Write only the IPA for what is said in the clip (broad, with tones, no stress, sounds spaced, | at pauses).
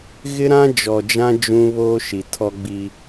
ɣ ɪ˦ ɾ ã˦ d͡ʒ ɔ˨ d͡ʒ ã˦ d͡ʒ ũ˦ β oː˦ ʃ i˨ tʰ ɔ˦ ɡ͡b i˦